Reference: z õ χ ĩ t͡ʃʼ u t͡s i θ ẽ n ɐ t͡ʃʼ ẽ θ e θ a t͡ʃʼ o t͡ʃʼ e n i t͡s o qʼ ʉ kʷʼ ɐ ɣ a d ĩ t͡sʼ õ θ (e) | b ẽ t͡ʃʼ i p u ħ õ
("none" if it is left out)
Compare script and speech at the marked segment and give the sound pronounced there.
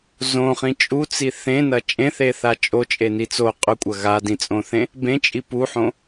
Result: ẽ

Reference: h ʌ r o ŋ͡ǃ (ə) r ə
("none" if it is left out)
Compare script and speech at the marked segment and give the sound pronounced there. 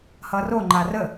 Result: a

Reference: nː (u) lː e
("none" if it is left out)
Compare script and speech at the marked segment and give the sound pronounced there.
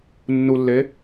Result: u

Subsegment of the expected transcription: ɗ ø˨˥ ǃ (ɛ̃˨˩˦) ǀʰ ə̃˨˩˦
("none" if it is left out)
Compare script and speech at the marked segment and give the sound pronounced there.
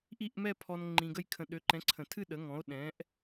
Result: ɛ̃˨˥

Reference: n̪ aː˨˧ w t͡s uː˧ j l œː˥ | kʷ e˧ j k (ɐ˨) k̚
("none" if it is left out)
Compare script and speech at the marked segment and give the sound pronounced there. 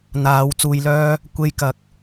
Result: ɐ˨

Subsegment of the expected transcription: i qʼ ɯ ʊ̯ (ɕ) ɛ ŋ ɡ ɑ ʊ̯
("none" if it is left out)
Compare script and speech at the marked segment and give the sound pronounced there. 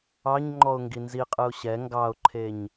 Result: ɕ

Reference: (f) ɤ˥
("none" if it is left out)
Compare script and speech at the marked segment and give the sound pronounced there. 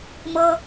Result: m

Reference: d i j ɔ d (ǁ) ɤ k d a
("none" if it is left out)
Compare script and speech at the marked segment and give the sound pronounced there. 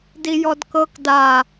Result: k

